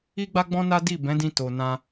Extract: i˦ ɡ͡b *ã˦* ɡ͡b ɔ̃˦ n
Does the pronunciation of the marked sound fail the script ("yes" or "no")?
yes